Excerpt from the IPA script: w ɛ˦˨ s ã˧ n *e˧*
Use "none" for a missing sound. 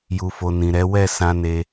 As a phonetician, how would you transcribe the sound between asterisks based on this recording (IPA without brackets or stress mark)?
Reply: e˧